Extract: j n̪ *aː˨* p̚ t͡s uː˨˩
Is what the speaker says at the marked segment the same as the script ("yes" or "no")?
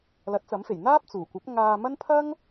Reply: no